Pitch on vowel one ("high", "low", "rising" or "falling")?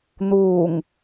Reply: low